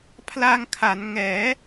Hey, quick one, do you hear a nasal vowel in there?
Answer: no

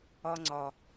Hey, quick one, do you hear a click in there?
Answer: yes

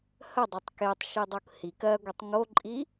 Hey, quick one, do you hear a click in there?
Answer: yes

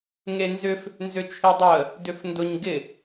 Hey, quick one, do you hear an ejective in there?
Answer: no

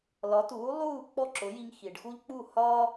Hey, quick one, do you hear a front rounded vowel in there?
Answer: no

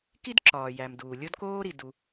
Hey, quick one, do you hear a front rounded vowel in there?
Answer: no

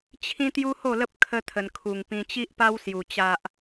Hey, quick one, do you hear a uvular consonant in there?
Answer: no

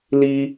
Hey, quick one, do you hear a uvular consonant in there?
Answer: no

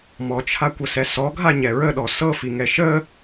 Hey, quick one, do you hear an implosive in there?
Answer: yes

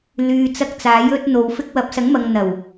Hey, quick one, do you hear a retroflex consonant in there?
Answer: no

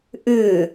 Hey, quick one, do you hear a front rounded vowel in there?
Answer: yes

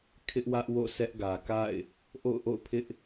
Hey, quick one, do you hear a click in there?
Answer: no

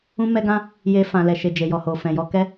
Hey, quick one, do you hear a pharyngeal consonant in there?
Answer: no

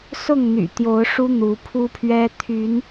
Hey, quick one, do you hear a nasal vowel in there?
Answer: no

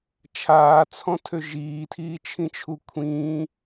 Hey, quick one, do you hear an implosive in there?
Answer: no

